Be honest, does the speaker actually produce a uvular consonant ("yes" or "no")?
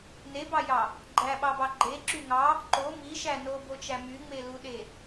no